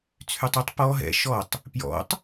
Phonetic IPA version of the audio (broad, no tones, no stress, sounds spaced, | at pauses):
t͡sʰ y tˤ o tˤ p ɔ ɦ ɛ̰ ʃ ɔ tˤ | p j ɔ̰ tˤ